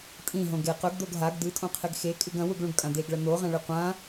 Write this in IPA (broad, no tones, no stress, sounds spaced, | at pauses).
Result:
tʼ ĩ ɦ õ ɡ e q ɵ ɡ d̪ o ɡ ɦ a ɡ d̪ ɨ tʼ õ qʰ e ɡ x e kʼ ɨ ɡ ɐ̃ w u ɡ ɭ ũ ɡ kʼ ã d̪ e ɡ ɭ ɐ n̪ o ʁ ɐ̃ ɭ ɨ qʷ ã